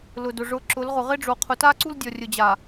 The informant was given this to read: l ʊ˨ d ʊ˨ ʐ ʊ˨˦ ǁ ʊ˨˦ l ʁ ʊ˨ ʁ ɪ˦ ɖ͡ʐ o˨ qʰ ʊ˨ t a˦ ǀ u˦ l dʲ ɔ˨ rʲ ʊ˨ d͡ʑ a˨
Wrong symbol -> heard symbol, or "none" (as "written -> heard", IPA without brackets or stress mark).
none